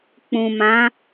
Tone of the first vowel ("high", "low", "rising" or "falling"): low